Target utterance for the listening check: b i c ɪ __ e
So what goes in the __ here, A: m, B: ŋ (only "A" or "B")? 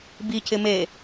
A